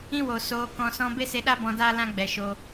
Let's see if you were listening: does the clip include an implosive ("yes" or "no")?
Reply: yes